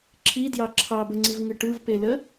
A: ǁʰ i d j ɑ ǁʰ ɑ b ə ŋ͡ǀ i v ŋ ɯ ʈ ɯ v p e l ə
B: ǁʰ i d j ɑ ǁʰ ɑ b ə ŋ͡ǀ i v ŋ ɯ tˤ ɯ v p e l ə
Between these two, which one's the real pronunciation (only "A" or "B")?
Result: A